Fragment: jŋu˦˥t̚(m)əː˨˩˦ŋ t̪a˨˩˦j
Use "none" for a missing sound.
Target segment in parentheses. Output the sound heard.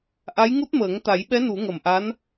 m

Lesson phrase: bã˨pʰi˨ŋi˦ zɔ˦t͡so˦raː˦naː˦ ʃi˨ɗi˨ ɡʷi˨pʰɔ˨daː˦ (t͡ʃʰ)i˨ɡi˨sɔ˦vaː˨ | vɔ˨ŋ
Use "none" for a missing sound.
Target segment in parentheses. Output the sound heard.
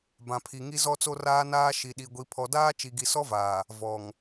t͡ʃ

